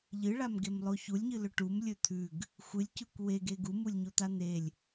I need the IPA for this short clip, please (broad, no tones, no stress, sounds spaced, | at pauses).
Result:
ʎ ɨ ɭ a m ɡ e m lˠ o ç u lʲ ɲ ɨ l ɵ ʈ u m lʲ ɵ t̪ʰ ʉ ɡ | xʷ ɨ lʲ c ʉ kʷ w e ɡ e ɡ u m u lʲ ɲ o t̪ a n̪ e lʲ